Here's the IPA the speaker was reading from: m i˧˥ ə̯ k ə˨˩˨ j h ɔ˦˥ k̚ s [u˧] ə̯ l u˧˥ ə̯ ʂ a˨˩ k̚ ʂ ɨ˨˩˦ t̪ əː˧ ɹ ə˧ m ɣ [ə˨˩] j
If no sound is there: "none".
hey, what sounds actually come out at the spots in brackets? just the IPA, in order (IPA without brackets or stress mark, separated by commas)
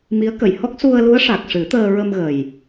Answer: u˧, ə˨˩